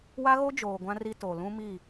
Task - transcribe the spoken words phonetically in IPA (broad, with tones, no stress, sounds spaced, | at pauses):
w a˦ ɣ o˦ d͡ʒ oː˨ ɡʷ ã˦ r i˦ t o˨ l ũ˦ m i˦˨